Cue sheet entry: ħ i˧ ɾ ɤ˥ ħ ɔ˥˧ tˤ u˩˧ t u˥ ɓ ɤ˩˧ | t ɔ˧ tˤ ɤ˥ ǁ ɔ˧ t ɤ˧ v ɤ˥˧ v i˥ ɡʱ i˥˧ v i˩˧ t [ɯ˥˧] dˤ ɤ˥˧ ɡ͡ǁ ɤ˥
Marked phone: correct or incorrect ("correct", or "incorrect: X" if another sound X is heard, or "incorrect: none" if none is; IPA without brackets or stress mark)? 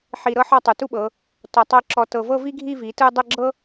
correct